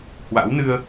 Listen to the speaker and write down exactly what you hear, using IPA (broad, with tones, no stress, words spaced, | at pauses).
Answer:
hwa̰˧˥wnɨ˧ə̯